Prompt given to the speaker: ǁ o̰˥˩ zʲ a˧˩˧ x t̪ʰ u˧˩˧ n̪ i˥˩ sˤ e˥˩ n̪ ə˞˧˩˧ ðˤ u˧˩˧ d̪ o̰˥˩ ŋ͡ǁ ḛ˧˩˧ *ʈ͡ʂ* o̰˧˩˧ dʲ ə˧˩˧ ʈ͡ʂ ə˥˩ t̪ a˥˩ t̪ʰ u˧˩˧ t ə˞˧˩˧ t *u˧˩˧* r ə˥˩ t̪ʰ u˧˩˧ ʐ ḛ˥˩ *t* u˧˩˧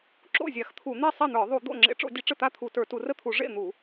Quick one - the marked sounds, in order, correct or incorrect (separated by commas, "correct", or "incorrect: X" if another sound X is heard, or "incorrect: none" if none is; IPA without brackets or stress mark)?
correct, correct, incorrect: n̪